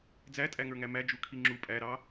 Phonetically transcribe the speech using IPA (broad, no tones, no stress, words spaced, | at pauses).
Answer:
d͡zætʼæŋə˞ŋæ mæd͡ʒukʰi ŋ͡ǁu pʼæɾɑ